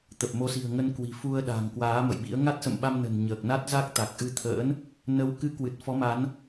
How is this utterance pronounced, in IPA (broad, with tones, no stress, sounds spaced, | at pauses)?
t̪ ə˨˩ p̚ m o˨˦ s i̤˨˩ ə̯ ŋ ə˧ n k w i̤˨˩ f u˧ ə̯ ɗ a̤˨˩ ŋ k w aː˨˦ m ə̰˧˨ j ɓ ḭ˧˥ ə̯ ŋ a˦˥ t̚ s ə̰˧˨ m ɓ a˧ m n ə̤˨˩ n ɲ əː˨˩ k̚ n a˦˥ t̚ z a˦˥ k̚ t̪ a˨˩ k̚ ʔ ɨ˧ t̪ʰ ə̰ː˧˥ n | n ə˨˦ w k ɨ˨˦ k w ɨ˨˩ t̚ f ɔ˨˦ m a˨˦ n